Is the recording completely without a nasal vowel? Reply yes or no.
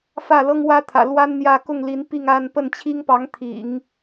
yes